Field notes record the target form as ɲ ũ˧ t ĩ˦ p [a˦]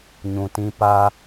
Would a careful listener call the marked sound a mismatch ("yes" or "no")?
no